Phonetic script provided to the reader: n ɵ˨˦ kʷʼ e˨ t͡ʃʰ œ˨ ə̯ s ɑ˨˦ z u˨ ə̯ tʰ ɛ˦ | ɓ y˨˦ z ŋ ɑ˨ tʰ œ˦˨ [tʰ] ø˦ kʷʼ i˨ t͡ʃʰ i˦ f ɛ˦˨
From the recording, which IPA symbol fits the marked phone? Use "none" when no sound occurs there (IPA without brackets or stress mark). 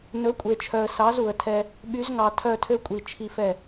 tʰ